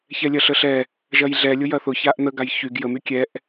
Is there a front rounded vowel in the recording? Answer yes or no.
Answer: yes